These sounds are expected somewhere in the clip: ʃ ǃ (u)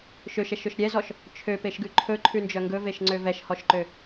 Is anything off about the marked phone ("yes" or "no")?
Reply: yes